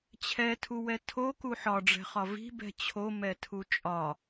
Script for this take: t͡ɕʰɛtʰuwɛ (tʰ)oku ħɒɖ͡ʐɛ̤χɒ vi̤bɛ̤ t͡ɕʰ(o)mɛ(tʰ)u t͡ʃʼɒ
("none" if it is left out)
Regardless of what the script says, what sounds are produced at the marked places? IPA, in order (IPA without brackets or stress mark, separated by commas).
tʰ, o, tʰ